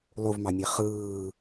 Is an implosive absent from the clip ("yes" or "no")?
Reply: yes